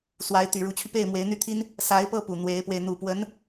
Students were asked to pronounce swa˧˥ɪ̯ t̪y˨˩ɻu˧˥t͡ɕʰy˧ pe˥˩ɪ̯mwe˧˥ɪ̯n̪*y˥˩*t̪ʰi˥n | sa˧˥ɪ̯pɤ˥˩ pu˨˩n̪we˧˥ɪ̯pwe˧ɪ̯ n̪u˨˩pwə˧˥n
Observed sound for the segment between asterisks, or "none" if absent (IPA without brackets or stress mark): y˥˩